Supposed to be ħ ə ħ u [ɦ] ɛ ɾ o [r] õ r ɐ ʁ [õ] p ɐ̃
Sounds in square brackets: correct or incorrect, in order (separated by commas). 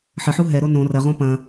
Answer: correct, incorrect, correct